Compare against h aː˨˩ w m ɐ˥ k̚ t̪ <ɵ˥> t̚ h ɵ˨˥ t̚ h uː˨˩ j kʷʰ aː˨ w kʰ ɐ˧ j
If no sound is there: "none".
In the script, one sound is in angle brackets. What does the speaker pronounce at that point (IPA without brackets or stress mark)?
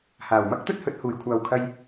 ɵ˥